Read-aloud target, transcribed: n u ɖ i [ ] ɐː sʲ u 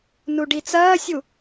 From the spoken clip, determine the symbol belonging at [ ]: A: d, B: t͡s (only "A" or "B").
B